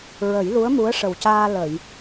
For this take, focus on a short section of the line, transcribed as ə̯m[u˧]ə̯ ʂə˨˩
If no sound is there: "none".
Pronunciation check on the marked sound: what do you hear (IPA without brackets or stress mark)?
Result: u˧˥